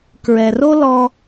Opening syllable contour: low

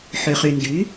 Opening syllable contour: low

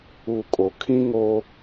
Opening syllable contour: low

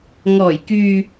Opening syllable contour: low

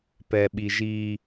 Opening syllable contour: high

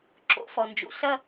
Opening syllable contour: rising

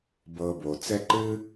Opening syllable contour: low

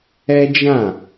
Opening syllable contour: high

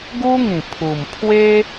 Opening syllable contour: high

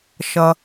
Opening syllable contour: low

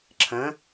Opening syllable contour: rising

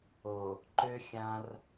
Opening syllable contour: low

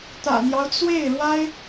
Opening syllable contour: low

